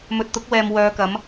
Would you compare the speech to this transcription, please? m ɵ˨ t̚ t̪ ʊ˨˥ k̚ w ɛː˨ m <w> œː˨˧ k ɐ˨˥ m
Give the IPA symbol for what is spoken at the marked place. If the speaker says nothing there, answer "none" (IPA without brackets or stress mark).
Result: w